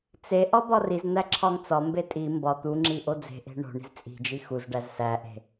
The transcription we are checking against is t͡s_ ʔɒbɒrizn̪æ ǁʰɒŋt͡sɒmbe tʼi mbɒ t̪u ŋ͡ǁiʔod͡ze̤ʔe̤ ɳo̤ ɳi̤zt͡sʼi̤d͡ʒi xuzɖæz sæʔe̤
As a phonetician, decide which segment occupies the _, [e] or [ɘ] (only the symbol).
e